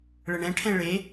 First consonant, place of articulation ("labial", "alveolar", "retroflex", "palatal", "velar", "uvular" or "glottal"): retroflex